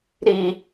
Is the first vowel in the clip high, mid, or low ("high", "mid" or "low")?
high